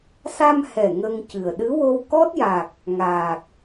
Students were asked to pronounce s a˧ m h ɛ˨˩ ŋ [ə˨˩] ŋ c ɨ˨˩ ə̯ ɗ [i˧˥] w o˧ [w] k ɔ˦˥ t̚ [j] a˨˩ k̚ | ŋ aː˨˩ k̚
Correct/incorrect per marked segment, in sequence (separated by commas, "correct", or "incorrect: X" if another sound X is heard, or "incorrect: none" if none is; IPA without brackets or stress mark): incorrect: ə˧, incorrect: ɨ˧˥, correct, correct